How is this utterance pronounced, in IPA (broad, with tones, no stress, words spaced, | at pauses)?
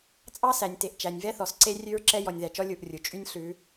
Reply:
t͡sʼɑ˦sæ˨nʲte˨ʔ t͡ʃæ˨nʲvɛ˦θɔ˨sǀe˦ rʲʉ˦ɹǁɛ˦ jɔ˨nʲðæ˨t͡ʃɔ˦ lʲu˦˨ʔrʲu˨ t͡ʃʼy˦nʲ ɬʉ˨˦